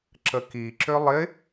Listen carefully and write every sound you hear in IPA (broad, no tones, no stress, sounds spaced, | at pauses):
ǁ ə k i ǁ ʏ lˠ ɪ